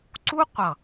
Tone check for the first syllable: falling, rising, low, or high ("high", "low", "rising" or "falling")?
high